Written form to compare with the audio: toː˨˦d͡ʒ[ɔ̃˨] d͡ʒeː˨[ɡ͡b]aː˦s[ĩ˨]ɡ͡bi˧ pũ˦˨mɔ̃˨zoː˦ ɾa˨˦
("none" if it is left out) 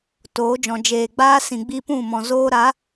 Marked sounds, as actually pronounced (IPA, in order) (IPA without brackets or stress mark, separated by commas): ɔ̃˨, ɡ͡b, ĩ˨